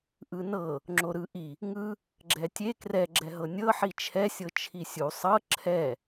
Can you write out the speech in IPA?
ʔ ɯ n ɤ | ŋ͡ǁ o ɾ ɯ ʔ i | ŋ ɯ | ɡ͡ǁ ɛ tʲ e k r ɛ ɡ͡ǁ ɛ ɦ ɤ nʲ ɤ ħ i t͡ʃʰ ɛ sʲ ɤ t͡ʃʰ i sʲ u sˤ ɤ ǁʰ ɛ

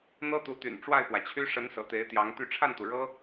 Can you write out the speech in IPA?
n̪ ɤ˥ t̪ u˧˥ t̪ y̰˨˩ n ʈ͡ʂ w a˥˩ ɪ̯ p w ä˩ t͡ɕʰ y˥ ʂ ə˧˥ n s ɤ̰˨˩ t̪ e˧˥ ɪ̯ t̪ j ɑ˧˥ ŋ t̪ y˥˧ ʈ͡ʂʰ a˥˩ n t̪ u˩ ɻ ɤ˥

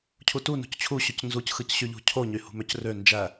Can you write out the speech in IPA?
cʰ u t u n ṳ c t͡ɕʰ u ɕ ø c n z u c x ɯ c ɕ y ʎ ṳ cʰ o ɲ y h ṳ m ø c r ø n d͡ʒ æ

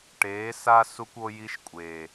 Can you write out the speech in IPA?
ʈ eː˨˦ s a˦ s u˦ kʷ o˦ j i˦ ʃ kʷʼ eː˨

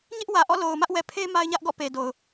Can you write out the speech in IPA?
ɲ ɪ˦ ʔ w ä˨ ʔ ɔ̰˦˨ l o˨ ʊ̯ m ä˦ ʔ w ɛ˨ pʰ e˦ m a˦ ɪ̯ ɲ ä˦ ʔ ɡ ɔ̰˦˨ p e˨ d o˨ ʊ̯

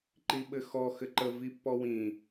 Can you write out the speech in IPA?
ǃ i ɓ ɘ x ɔ x ɘ ǃ ə v i pː ɔ w ĩ

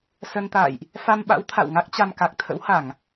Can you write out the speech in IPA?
s ə˧ n t̪ a̰ː˧˨ j ʔ | f a˧ m ɓ a̰˧˥ w t̪ʰ a̰˧˨ w ŋ a˦˥ k̚ t͡ɕ a˧ m k a˨˩ k̚ t̪ʰ ə̰˧˥ w h a˧˩˨ ŋ

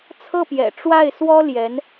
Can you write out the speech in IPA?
t͡sʰ ɤ˥˩ p j ɛ̰˨˩ ʈ͡ʂ w a˥˩ ɪ̯ s w ɔ˥ l j ɛ˧˥ n

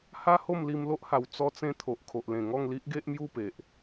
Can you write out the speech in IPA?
h a˦ h o˥˧ m l i˧ m l o˦ ʔ h a˨˩ w t͡s ɔ˦ t͡s ẽ˥˧ t̪ʰ o˨ ʔ kʰ o˨ ʔ l ẽ˨˩ ŋ ɔ˥˧ ŋ l i˦ ʔ ɡ e˦ ʔ m j u˥˧ p e˨ ʔ

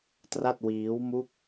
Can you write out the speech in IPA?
t r a˥˩ t̚ w iː˦˥ w m u˥˩ k̚

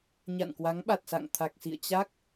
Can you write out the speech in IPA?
ɲ a̰˧˨ n k w a˨˦ ŋ ɓ a˨˩ t̚ s a̰˧˨ ŋ t̪ʰ a˨˩ k̚ s ḭ˧˨ ə̯ t͡ɕ a˦˥ k̚

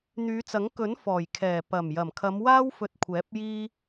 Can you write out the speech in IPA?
n̪ yː˨˧ t͡s ɐ˨˥ ŋ k ɵ˨˥ n f ɔː˨˩ j kʰ ɛː˨˩ p ɐ˨˩ m j ɐ˨˩ m kʰ ɐ˨˧ m w aː˥ w f ɵ˧ t̚ kʷʰ ɛː˨˥ p̚ j iː˥

